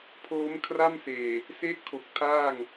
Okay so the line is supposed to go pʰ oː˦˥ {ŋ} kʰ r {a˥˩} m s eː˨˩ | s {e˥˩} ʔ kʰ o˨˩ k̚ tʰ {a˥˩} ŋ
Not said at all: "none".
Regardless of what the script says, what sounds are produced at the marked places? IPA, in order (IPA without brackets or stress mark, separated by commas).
m, a˥˩, e˥˩, aː˥˩